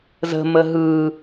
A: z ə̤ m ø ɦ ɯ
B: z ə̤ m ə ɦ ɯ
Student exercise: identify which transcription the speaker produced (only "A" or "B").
B